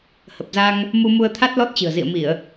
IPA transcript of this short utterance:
h ə˨˩ p̚ z a˧ ŋ | m u˧ m u˧ ə̯ t̪ʰ a˦˥ t̚ l ɔ˦˥ t̚ t͡ɕ ɨ̤˨˩ ə̯ z ḭ˧˨ ə̯ m i˧˩˨ ə̯

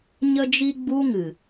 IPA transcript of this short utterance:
ɲ ə˧ d͡ʒ i˧ ɡ͡b u˦ ŋ ɨ˨

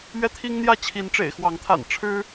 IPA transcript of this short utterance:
ɥ ɛ˦ t̪ʰ i˦ ŋ n̪ j ä˥˨ t͡ɕʰ i˨˦ n ʈ͡ʂ ḛ˨˩ ɪ̯ x w ɑ˨˦ ŋ t̪ʰ a̰˨˩ n ʈ͡ʂʰ ɻ̩˦

